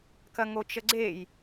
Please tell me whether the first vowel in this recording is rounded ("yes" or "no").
no